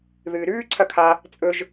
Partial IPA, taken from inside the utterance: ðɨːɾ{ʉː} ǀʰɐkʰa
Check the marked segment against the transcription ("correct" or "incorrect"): correct